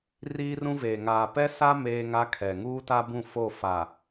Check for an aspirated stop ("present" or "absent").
present